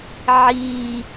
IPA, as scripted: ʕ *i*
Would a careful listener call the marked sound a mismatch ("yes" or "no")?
no